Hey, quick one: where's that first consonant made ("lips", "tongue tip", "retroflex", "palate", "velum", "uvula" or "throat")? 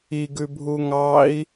velum